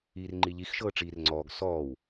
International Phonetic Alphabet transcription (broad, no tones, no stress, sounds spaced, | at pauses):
iː r ŋ͡ǃ i ʎ i x ʃ ɤː ʈ͡ʂ iː r ŋ͡ǀ ɔː ɡ s ɔː w